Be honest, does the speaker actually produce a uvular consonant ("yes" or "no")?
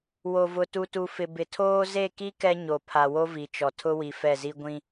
no